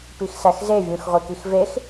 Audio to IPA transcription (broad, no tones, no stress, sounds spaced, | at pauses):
p i x s æ x z e vʲ ũ x ʁʷ i k i x v e x